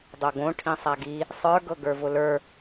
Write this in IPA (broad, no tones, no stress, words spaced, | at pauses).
dˤoɡõ ʈʰĩsˤaɡi | sˤə˞ ɡɤɡə˞vʊlə˞